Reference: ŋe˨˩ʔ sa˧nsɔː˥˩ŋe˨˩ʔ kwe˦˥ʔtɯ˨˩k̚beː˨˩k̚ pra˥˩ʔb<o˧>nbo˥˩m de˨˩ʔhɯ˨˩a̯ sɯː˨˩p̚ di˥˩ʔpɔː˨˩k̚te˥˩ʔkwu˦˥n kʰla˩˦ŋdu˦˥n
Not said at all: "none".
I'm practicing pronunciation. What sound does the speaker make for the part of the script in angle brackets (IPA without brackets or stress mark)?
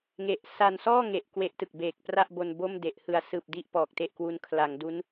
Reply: o˧